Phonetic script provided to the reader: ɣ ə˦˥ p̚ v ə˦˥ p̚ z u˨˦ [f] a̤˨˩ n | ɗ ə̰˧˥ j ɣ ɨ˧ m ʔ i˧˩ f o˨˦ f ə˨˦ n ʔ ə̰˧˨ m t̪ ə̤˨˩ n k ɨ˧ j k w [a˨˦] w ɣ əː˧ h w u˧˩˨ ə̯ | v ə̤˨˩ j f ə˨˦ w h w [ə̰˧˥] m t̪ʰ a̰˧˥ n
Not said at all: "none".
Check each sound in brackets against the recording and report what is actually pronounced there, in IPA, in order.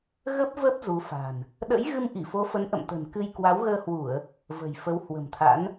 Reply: f, a˨˦, ə̤˨˩

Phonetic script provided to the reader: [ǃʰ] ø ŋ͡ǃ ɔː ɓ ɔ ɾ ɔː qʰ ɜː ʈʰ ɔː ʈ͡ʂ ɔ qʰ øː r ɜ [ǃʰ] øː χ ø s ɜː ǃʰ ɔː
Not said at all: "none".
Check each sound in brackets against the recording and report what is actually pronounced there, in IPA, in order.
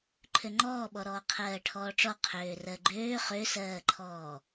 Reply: ǃʰ, ɡ͡ǃ

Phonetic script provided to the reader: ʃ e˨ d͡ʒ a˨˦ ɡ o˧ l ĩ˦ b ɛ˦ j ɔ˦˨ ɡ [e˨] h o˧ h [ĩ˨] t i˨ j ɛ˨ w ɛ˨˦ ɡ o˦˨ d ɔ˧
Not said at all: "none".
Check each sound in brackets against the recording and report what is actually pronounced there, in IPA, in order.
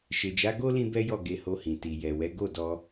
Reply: e˧, ĩ˨

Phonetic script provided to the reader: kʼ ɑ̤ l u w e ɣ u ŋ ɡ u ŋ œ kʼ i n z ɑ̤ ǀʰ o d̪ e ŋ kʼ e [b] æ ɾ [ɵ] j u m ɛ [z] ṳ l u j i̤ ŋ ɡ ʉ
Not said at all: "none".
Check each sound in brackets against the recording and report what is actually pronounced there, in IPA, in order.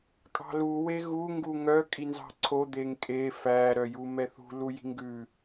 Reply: f, œ, θ

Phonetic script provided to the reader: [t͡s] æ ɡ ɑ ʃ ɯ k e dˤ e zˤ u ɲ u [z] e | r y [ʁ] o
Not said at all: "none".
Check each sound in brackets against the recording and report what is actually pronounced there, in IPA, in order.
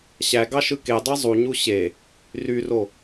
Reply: ɕ, ɕ, r

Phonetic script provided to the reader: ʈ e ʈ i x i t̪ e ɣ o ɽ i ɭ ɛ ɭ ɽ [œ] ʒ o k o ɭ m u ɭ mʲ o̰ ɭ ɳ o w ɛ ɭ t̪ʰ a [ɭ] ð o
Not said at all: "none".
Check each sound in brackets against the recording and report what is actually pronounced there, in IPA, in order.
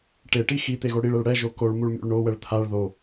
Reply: ɛ, ɭ

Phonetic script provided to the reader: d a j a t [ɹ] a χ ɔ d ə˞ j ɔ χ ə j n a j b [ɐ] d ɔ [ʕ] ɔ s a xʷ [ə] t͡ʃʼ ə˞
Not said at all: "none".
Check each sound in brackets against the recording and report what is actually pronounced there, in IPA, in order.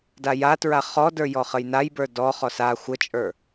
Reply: ɹ, ə˞, χ, ə

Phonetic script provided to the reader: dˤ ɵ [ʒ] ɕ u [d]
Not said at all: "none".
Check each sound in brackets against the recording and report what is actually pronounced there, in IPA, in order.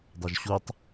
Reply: ʒ, tˤ

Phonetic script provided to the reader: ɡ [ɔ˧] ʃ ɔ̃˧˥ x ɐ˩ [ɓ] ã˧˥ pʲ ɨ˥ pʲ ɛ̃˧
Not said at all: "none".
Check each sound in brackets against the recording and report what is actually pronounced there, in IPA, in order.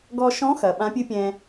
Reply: ɔ˧, ɓ

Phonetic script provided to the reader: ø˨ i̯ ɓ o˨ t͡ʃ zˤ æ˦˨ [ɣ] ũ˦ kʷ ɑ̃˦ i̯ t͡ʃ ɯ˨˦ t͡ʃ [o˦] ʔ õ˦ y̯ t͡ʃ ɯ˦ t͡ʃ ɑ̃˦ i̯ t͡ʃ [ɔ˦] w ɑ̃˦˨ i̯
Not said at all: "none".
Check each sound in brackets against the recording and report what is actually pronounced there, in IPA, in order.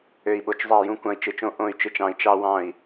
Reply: j, õ˦, ɑ˦

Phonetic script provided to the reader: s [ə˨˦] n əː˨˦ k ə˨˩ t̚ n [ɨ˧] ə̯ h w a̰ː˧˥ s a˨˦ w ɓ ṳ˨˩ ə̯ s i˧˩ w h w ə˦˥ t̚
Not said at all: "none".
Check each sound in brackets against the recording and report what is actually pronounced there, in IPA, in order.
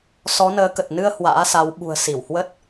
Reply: ɔ˨˦, ɨ˧

